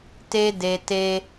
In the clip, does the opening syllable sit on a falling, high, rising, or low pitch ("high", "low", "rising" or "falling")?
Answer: high